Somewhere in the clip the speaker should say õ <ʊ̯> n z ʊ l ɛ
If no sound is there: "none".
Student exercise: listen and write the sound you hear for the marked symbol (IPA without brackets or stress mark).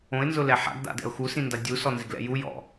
ɪ̯